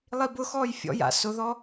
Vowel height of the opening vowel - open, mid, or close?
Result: close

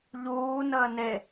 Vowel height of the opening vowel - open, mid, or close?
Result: close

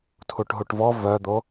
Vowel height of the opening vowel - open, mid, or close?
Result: close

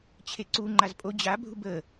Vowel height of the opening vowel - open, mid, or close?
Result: mid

